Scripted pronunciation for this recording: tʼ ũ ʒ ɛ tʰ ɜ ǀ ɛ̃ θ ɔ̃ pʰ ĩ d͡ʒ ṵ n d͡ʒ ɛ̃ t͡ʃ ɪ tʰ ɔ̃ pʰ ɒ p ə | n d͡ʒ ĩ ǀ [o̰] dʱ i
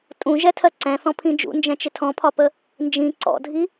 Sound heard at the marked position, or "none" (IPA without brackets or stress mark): ɔ̰